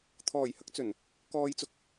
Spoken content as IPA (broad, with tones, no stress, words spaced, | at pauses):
t̪ʰɔː˨˩jhɐ˨˥k̚t͡sɵ˨˩n | kɔː˧jt͡sʊ˧k̚